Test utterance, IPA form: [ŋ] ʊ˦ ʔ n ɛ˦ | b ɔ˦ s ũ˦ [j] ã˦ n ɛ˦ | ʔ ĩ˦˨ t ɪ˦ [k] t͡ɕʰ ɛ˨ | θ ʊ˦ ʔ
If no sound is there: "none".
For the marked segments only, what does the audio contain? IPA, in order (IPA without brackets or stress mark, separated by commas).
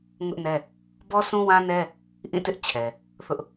ŋ, w, ʔ